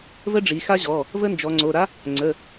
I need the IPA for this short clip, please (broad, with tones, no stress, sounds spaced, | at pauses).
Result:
v ə˦˥ ɖ͡ʐ i˩˧ x a˦˥ ʑ ɔ˩˧˩ | v ə˦˥ n d͡ʒ ɔ˩˧ ŋ͡ǀ o˩˧˩ ɾ a˦˥ | ŋ͡ǀ ə˩˧˩